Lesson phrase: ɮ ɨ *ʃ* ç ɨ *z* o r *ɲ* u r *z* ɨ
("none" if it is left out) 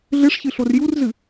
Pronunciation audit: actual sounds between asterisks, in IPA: ʂ, ɬ, j, z

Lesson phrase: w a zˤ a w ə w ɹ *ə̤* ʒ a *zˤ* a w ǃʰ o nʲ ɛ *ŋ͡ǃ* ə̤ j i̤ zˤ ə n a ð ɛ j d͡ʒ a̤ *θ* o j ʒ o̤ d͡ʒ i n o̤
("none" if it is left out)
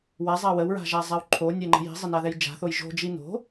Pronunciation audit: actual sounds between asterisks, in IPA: a̤, zˤ, ŋ͡ǃ, θ

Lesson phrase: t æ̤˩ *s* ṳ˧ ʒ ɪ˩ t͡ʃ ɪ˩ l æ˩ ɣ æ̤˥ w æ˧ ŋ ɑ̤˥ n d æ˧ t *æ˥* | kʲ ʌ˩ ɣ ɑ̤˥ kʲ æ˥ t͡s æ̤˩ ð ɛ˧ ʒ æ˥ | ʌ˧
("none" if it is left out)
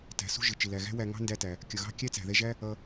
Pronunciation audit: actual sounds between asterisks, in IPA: s, æ˩

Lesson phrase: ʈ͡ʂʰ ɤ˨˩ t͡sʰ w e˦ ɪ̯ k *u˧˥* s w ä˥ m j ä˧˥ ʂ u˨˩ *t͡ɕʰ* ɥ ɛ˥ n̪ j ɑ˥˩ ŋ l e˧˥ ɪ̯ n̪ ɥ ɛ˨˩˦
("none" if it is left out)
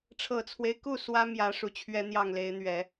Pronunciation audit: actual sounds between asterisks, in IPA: u˥˩, t͡ɕʰ

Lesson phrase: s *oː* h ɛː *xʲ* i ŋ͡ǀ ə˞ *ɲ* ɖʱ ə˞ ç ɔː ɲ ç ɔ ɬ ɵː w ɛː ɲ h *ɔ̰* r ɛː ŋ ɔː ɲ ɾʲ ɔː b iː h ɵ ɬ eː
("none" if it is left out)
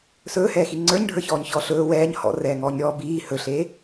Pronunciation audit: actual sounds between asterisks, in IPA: ɵː, x, ɲ, ɔ̰

